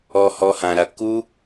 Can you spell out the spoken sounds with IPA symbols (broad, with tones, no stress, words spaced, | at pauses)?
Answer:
ɔ˧hɔ˧hã˨ɾa˧ ku˦